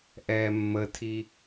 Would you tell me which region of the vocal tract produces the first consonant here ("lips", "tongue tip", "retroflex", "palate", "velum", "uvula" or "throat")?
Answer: throat